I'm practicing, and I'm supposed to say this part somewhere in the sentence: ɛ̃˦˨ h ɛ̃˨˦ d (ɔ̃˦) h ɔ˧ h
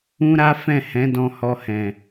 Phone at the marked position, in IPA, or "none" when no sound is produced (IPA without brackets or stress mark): ɔ̃˧